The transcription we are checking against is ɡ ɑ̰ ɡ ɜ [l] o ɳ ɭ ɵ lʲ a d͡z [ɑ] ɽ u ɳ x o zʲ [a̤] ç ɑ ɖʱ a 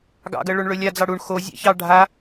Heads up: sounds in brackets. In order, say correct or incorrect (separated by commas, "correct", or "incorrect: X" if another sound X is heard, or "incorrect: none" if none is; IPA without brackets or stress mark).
incorrect: ɭ, correct, incorrect: a̰